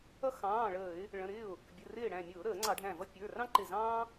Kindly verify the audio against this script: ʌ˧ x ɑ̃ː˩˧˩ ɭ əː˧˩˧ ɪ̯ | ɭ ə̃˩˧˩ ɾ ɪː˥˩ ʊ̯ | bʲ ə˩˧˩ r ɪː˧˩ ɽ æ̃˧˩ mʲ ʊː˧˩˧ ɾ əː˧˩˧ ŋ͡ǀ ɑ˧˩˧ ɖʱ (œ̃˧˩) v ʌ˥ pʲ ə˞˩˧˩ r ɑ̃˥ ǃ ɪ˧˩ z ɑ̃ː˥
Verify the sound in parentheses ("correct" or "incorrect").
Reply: incorrect